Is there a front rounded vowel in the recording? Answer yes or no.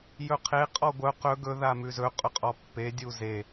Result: yes